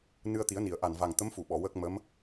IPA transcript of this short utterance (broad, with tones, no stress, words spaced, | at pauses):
nɨ˧ə̯t̪i˨˩˦ə̯ni˨˩˨ə̯ ʔa˨˩nva˨˩ŋ t̪ə˧˥mfu˨˩˨ɓɔ˨˩˨ wə˦˥k̚mə˧˥m